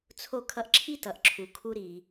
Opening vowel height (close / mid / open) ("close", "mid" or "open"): mid